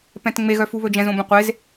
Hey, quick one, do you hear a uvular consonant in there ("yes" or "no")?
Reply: yes